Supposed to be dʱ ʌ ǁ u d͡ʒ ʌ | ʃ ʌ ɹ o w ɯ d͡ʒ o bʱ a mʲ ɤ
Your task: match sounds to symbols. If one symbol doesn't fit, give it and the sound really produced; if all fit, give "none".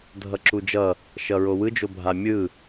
ɤ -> ɯ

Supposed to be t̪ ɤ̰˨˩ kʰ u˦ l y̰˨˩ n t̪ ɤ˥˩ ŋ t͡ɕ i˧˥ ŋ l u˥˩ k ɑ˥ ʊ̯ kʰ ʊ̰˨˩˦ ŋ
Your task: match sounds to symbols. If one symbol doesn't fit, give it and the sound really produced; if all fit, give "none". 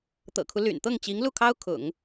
k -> kʰ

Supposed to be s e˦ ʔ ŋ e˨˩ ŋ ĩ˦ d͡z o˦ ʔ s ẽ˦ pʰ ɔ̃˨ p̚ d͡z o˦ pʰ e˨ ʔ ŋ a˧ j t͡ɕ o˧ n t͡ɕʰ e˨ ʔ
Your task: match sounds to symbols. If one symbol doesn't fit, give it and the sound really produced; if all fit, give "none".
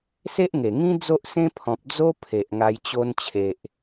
none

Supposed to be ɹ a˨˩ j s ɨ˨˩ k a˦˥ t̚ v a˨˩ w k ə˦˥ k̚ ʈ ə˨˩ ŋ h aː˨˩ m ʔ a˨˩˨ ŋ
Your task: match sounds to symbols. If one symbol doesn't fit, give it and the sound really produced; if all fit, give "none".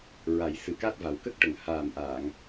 none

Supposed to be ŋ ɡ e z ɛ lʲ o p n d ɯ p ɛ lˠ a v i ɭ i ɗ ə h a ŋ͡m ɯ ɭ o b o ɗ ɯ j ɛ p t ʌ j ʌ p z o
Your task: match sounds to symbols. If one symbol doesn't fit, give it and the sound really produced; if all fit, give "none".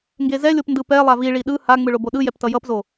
ə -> ɯ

